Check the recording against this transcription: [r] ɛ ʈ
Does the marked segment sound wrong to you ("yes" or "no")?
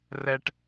no